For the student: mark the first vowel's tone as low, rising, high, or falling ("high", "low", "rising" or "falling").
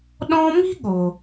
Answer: high